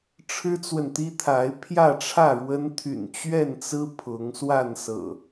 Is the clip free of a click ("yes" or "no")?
yes